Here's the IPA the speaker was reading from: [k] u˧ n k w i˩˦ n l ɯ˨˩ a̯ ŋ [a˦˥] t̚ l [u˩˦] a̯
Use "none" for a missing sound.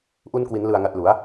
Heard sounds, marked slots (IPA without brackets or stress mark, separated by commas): ʔ, a˨˩, u˩˦